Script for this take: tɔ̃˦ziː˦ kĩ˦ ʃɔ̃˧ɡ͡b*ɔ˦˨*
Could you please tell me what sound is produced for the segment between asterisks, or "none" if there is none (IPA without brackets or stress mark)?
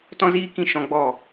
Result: ɔ˦˨